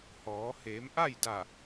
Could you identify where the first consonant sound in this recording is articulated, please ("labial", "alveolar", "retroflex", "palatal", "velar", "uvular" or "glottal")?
glottal